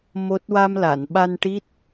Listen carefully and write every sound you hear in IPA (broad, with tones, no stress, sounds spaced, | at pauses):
m o˦˥ t̚ w a˧ m l a˨˩˨ n ɓ a˧ n ʈ i˦˥ t̚